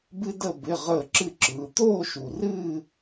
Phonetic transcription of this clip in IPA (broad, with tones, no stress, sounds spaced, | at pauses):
b ɨ˥ d ə˥˧ b ɪ˧˥˧ ʁ əː˥˧ ǁ ɨ˥˧ ǁ ɯː˨˦ t̪ oː˥˧ ʃ u˨˩ r ɨː˥˧